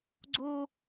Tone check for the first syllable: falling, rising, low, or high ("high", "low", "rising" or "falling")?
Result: high